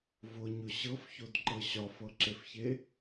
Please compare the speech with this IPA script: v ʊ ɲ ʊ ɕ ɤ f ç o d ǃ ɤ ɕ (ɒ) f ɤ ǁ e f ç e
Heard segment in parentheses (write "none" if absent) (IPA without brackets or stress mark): ɒ